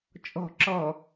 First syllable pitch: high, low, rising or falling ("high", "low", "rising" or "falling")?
low